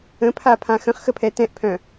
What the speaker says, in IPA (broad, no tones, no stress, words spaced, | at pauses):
ə̃pʰapʰã xə̃χxəpʰɛ tɛ̃ʔpʰœ̃